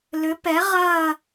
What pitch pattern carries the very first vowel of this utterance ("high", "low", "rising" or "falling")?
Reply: rising